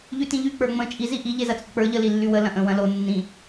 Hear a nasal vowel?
yes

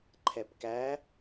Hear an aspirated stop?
yes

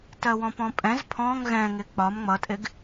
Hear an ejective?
yes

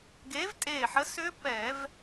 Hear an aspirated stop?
no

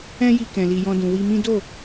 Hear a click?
no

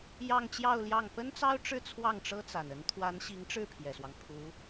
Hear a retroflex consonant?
yes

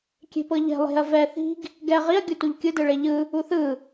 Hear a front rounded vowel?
no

